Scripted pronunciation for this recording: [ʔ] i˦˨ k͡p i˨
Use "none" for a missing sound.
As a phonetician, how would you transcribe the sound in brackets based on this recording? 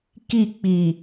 k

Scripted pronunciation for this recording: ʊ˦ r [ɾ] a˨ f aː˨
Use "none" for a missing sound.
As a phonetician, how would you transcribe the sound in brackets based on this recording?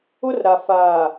ɾ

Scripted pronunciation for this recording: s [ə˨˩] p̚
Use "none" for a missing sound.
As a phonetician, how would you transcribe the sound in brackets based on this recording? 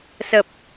ə˨˩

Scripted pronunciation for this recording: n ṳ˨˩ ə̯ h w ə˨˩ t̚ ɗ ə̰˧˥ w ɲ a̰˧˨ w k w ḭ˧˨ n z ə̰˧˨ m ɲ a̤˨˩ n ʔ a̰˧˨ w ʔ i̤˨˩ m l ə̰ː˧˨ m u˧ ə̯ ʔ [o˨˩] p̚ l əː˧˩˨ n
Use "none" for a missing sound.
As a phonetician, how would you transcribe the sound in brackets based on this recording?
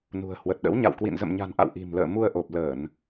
o˨˩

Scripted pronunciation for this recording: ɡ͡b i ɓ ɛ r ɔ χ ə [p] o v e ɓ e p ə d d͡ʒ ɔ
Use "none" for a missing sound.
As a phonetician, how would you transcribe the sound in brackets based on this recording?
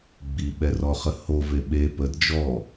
h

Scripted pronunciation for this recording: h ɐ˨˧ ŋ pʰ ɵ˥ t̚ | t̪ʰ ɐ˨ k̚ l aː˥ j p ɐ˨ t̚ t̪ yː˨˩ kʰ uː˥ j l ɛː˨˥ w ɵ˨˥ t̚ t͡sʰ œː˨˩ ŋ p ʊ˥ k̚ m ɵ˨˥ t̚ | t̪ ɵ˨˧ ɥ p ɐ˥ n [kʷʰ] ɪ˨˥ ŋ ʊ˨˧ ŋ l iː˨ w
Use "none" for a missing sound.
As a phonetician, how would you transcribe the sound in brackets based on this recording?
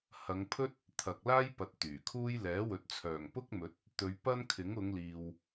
kʰ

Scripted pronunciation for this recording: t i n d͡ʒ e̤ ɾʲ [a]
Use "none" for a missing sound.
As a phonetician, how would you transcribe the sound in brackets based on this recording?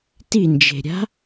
a̤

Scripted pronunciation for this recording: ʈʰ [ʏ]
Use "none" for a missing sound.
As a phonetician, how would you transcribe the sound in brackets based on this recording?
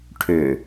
ʏ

